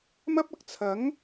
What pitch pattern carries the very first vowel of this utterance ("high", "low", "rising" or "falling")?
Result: high